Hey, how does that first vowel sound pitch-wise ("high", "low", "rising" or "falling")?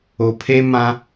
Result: low